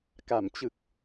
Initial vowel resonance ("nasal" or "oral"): oral